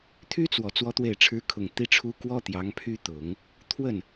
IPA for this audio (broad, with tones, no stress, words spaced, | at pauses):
t̪ʰy˥t͡swɔ˨˩ t͡swɔ˥t̪we˥˩ɪ̯ʈ͡ʂʰɻ̩˥ kʰʊ˨˩ŋ t̪i˥˩ʈ͡ʂʰu˥ kwɔ˥ t̪jɑ˧˥ŋpʰy˥ t̪ʊ˨˩˦ŋ | t̪ʰwə˥˩n